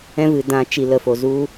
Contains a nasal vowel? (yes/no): yes